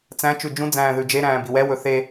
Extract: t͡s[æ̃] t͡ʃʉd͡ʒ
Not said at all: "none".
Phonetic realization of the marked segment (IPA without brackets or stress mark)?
æ̃